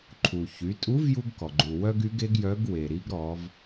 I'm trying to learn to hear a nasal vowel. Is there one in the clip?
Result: no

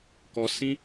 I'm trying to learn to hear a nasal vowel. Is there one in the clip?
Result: yes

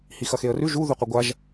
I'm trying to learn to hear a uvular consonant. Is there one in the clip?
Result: yes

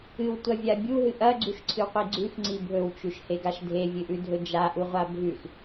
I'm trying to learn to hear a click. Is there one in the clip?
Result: yes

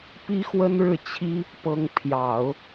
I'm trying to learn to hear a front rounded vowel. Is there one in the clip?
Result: no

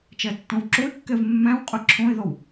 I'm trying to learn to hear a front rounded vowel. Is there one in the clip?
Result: no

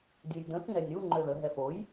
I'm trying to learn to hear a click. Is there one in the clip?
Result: yes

